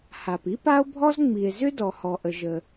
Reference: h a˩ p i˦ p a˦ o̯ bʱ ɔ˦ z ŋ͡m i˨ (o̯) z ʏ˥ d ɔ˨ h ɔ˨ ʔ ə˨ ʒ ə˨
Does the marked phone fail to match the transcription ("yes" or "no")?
yes